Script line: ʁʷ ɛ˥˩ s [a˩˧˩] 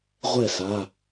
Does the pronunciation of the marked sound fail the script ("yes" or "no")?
no